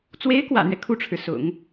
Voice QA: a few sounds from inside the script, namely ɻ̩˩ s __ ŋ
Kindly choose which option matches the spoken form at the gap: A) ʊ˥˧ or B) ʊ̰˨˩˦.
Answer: B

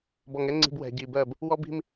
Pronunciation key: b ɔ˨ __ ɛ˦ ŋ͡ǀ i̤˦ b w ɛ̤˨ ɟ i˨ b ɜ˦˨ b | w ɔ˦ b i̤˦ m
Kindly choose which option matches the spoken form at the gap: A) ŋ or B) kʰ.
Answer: A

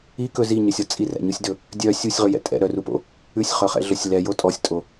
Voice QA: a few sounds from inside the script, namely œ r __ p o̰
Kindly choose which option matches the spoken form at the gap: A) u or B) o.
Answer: A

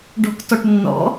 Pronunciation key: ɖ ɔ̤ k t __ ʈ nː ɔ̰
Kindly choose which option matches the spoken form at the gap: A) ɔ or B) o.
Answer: A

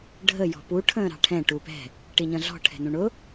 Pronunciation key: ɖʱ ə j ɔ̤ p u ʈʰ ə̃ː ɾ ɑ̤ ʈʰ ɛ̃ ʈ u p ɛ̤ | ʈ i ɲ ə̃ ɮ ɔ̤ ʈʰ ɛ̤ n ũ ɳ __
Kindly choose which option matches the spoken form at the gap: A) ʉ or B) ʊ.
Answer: B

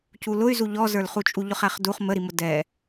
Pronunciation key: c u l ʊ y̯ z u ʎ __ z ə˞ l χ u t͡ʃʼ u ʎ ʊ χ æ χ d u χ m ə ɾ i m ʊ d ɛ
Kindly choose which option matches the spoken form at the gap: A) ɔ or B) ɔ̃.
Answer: A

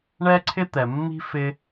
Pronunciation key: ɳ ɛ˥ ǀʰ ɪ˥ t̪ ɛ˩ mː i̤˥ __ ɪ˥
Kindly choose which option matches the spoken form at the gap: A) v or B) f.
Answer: B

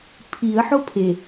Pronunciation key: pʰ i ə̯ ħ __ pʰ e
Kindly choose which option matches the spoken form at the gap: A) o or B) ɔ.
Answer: A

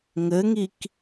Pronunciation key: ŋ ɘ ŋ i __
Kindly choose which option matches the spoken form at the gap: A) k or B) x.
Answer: A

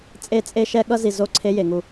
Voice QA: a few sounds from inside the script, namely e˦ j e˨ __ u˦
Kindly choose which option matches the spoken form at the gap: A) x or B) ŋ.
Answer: B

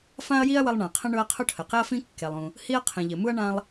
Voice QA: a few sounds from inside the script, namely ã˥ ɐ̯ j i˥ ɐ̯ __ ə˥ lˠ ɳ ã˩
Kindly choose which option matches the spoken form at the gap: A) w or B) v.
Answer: A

